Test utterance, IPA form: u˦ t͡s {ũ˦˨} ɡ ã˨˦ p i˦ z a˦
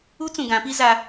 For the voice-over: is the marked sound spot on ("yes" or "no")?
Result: no